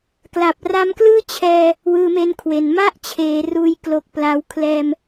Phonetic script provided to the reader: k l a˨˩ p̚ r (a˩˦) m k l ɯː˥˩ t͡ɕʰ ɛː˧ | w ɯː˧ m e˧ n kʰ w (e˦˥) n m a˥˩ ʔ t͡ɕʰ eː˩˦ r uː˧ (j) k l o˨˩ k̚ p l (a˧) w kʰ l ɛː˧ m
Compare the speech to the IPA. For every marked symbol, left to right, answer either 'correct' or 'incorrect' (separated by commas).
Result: incorrect, incorrect, correct, correct